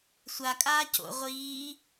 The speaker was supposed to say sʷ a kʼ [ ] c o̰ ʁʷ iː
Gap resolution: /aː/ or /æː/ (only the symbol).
aː